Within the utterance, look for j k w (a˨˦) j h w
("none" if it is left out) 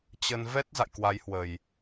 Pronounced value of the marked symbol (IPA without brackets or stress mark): a˨˦